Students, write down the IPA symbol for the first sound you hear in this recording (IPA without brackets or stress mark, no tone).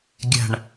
ɡʲ